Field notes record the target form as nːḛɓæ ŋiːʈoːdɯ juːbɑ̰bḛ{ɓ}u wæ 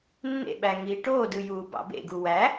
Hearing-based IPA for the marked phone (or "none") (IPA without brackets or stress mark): ɡ